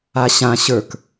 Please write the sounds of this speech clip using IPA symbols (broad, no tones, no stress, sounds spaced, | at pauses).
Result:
a ɕ ã ɕ ə˞ k